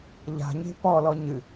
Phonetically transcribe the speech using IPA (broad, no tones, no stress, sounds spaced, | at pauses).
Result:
ʎ a̤ ɲ e̤ p ɔ l ɔ ɲ ɨ